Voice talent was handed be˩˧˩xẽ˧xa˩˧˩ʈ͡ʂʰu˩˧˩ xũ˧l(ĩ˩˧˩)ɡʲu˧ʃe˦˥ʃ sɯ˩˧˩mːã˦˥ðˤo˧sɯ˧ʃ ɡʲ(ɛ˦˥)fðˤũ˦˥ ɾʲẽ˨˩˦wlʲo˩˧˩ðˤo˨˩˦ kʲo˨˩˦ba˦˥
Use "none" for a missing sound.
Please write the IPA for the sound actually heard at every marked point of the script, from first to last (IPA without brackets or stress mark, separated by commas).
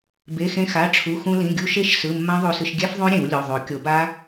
ĩ˩˧˩, ɛ˦˥